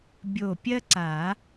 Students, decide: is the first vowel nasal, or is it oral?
oral